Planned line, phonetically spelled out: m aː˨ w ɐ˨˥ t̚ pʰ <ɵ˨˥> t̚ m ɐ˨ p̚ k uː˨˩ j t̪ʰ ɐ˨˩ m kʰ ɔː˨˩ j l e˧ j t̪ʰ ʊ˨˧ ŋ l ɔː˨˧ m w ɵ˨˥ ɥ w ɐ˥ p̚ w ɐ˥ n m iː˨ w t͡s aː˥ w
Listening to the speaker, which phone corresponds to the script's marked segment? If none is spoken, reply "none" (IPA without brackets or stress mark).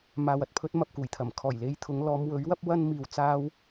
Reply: ɵ˨˥